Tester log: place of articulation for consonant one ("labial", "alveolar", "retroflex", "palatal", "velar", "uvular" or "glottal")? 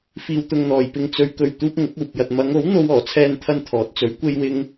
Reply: labial